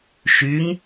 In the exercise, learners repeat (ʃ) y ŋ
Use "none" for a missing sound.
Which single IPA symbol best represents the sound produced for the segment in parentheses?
ʃ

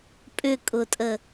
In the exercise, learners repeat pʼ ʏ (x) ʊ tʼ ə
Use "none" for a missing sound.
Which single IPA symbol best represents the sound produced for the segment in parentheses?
kʼ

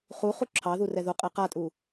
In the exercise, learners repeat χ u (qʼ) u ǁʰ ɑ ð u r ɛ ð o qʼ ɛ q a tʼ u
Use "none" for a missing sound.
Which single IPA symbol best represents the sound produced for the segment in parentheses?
χ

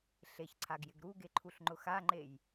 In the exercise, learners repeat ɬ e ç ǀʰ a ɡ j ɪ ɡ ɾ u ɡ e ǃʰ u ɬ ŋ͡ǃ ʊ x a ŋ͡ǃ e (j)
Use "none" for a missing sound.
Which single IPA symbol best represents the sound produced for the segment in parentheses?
j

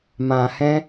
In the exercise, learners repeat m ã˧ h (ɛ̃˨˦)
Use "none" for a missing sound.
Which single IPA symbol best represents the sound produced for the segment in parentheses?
ɛ̃˦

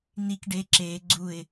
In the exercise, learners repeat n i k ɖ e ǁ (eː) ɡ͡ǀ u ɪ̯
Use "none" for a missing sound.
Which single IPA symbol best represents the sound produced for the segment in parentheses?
eː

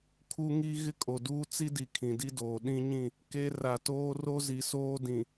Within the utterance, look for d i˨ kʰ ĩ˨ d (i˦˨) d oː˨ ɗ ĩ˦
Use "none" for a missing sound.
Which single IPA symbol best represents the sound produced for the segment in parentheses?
i˦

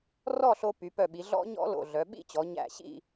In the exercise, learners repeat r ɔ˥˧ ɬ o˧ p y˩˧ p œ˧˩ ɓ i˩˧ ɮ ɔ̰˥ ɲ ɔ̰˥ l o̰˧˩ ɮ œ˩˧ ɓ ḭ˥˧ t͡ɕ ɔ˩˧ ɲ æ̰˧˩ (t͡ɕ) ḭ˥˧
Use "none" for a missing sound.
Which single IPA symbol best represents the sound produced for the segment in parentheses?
ɕ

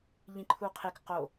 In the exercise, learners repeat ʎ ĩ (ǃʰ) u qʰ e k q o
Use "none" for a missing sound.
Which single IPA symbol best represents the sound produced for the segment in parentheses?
ǃʰ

